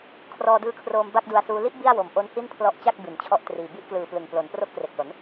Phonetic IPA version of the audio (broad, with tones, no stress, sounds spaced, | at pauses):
kʰ r ɔː˧ d ɯː˦˥ kʰ r oː˧ m b a˥˩ k̚ d u˧ a̯ s uː˦˥ l i˦˥ ʔ b i˥˩ a̯ w o˨˩ m ʔ o˦˥ n h i˥˩ n pʰ l ɔ˦˥ ʔ t͡ɕ a˥˩ k̚ b i˩˦ n t͡ɕʰ ɔ˦˥ ʔ t r iː˨˩ b i˦˥ ʔ k l ɯː˨˩ p l ɯ˨˩ ŋ p l o˩˦ n p r o˦˥ k̚ p r e˨˩ k̚ l o˩˦ n